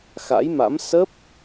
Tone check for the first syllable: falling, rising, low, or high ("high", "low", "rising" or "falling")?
rising